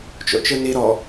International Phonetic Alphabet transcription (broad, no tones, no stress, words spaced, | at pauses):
t͡ʃo̰t͡ʃɯni ɾɔ